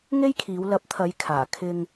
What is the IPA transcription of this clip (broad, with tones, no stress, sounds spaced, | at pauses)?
ŋ e˥ j kʰ iː˨˧ w l ɐ˨˥ p̚ t̪ʰ ɐ˨˧ j kʰ aː˨˩ kʰ ɪ˧ ŋ